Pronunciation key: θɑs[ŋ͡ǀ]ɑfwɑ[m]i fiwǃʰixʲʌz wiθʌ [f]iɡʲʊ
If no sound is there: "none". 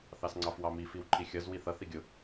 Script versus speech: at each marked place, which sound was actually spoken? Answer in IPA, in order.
ŋ͡ǀ, m, θ

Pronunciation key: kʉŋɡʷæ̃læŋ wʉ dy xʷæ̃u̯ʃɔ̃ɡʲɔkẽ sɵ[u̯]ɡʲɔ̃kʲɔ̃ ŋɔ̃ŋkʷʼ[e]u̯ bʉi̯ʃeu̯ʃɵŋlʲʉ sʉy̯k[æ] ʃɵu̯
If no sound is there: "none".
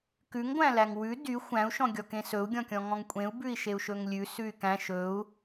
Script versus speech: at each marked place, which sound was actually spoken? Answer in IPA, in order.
u̯, ẽ, æ̃

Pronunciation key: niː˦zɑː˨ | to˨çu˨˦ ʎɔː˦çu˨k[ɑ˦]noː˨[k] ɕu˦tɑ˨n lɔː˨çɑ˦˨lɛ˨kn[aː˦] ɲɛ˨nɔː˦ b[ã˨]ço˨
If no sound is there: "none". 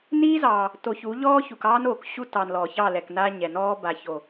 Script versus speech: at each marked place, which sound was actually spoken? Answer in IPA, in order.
ɑː˦, k, aː˦, a˨

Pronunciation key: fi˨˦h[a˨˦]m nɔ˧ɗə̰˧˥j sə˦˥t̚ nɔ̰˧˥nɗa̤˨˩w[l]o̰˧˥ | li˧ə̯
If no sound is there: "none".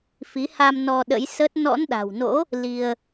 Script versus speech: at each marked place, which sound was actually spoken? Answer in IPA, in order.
a˧, n

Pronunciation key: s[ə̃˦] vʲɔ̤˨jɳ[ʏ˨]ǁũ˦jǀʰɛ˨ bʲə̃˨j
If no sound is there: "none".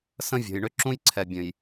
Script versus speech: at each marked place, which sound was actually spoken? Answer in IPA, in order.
ə̃˦, ʏ˦

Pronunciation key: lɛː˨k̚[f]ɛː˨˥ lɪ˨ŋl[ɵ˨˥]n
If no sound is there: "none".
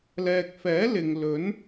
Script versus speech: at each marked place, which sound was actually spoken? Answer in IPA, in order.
f, ɵ˨˥

